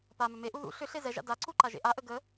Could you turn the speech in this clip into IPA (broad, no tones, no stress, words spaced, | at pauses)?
pamʏ meʔu ðṵ ɬʏ ɬezɛʒa̰ daǀu ǃaʒḛʔaʔə ɡə